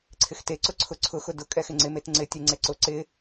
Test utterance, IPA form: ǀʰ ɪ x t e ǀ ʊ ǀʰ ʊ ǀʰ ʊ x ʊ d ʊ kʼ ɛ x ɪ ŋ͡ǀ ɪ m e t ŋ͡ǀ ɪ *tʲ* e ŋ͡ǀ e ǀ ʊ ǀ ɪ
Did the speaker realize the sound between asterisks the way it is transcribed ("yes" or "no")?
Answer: yes